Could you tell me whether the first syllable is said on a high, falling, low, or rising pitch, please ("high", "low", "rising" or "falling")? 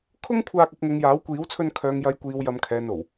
high